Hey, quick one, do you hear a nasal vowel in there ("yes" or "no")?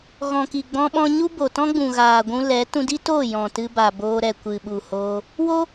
yes